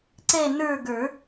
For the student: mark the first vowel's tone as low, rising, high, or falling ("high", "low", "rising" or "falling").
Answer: falling